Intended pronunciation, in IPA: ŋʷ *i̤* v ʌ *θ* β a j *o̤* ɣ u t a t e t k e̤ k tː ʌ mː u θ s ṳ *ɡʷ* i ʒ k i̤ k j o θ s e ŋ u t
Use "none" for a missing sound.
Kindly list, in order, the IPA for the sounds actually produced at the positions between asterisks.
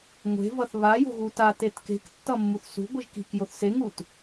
e̤, θ, o̤, ɡʷ

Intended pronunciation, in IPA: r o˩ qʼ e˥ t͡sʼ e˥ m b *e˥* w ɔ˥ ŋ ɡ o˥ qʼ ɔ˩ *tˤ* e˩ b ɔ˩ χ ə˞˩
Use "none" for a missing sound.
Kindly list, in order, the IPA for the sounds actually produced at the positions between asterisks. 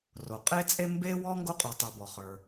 e˥, tˤ

